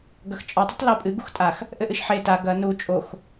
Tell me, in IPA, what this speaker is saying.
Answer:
ɡɐxt͡ʃʼɔtˤ ɘtˤlupʼɨ ɡuxtʼax | ʔɘʔɨʃħe ta ɡɐ nu t͡ʃʼox

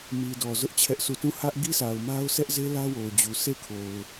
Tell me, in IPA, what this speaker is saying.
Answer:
mi˨dɔ˨ zʊ˦ʔ t͡ɕʰɛ˦ʔsʰu˦˨ tũ˦˨ hä˦ʔ ɡi˦sa˨ʊ̯ma˦ʊ̯ sʰɛ˦ʔze˦ lä˦wo˨ʊ̯d͡ʑu˨ se˦˨kʰo˨ʊ̯

